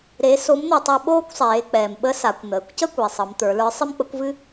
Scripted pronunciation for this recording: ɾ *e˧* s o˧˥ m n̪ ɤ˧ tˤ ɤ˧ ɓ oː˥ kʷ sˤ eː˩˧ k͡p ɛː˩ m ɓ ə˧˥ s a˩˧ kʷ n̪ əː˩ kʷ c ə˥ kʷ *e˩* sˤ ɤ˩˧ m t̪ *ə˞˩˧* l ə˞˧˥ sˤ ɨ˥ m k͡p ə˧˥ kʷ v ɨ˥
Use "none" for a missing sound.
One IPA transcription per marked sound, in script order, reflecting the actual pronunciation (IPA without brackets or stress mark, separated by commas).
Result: e˧˥, e˩, ə˞˩˧